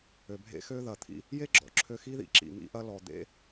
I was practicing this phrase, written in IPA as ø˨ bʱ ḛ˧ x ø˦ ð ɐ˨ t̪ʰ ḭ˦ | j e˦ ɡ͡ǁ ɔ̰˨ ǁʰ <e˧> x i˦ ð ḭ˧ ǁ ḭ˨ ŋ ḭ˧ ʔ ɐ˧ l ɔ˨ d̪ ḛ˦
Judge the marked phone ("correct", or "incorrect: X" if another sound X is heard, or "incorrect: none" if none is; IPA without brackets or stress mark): incorrect: ø˧